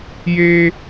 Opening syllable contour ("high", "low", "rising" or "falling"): high